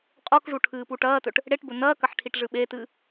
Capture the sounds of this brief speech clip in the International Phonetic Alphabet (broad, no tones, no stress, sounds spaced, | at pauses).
qʼ o k ʐ u ʈʰ ɨː p u ʈ ɐː t ɵ ʈ | ɽ e ʈ b ɵ n ɐː k ɐ ħ ʈʰ i ʈ ʐ ɨ ɓ e t ɨː